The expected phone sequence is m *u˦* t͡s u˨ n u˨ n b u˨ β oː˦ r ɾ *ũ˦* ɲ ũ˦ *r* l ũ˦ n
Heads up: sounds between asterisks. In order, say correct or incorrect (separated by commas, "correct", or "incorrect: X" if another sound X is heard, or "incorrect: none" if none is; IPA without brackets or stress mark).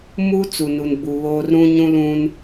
correct, correct, incorrect: none